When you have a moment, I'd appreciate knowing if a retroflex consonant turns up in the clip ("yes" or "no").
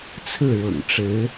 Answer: yes